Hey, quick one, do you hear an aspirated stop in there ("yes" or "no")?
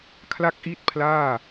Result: yes